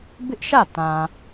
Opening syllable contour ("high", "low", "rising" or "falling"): high